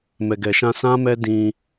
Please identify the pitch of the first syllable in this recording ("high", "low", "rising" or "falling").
low